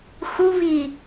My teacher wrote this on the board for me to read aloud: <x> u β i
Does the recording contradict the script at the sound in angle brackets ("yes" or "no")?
no